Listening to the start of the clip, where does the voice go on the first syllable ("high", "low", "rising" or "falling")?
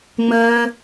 high